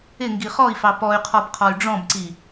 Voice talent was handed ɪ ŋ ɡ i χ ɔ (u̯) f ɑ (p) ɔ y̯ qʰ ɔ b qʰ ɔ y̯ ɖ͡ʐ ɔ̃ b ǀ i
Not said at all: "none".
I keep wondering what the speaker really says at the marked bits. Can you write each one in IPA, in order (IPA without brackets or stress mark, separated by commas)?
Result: i̯, p